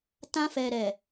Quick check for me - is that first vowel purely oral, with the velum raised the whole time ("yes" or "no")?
no